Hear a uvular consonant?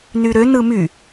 no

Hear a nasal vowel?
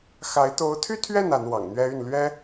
no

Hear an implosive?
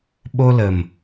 yes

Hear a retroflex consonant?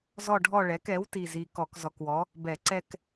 yes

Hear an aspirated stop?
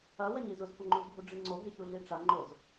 no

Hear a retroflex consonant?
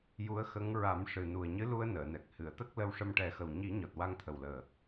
yes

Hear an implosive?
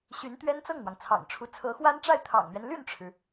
no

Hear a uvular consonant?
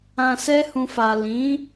no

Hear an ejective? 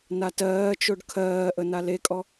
yes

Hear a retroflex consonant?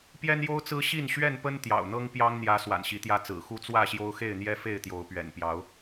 no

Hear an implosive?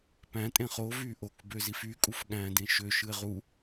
yes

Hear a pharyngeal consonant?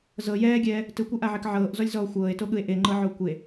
yes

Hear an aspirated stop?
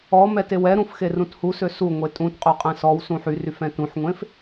no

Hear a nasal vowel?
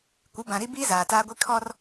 yes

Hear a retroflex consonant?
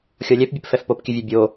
no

